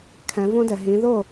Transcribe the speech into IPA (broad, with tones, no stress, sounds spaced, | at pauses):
kʰ ɛ̃˩˧ v õ˦ d ɛ˩ ɦ ĩ˩˧ ð o˥˩